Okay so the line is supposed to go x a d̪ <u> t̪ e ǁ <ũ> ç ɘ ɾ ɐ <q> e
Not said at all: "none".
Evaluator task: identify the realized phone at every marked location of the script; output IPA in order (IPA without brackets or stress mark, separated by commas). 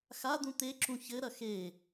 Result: ũ, ũ, x